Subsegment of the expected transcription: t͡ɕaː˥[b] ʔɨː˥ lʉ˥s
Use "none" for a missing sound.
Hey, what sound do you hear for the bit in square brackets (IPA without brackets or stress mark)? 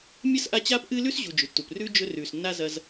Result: p